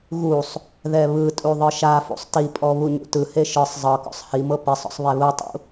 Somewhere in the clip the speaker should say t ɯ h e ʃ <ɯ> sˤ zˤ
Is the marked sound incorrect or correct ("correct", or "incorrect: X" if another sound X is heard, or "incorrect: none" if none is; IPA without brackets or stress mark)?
correct